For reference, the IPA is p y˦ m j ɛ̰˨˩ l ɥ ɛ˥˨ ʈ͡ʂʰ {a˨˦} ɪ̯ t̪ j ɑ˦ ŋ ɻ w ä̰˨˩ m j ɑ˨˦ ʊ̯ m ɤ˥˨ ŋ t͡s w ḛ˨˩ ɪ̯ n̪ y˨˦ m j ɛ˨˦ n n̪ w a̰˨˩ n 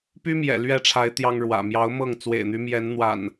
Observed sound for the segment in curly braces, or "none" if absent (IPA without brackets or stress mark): a˨˦